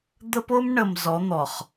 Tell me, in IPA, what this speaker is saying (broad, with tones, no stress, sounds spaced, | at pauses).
d̪ ə˦ p o˦ m ɳ ə˨ m z ɔ˨˦ n̪ ɔ˨ χ